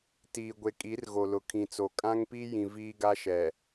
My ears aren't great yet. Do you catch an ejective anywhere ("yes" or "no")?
yes